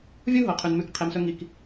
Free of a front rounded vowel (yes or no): yes